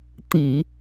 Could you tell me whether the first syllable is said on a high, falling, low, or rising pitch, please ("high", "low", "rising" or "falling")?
low